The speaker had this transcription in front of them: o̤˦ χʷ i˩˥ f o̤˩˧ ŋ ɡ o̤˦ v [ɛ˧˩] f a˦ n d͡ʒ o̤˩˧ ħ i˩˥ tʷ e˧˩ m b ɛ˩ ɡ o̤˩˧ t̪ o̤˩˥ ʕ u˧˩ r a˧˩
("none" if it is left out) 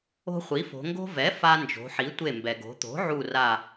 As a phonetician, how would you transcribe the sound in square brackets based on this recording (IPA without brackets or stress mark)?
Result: ɛ˩˥